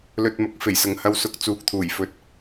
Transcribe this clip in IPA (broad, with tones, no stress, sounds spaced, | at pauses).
l ɵ˧ t̚ m ɐ˧ k̚ f e˨˩ j s ɐ˨ ŋ h ɐ˧ w s ʊ˧ k̚ t͡s uː˨ k̚ t̪ʰ uː˨˩ j f ɵ˧ t̚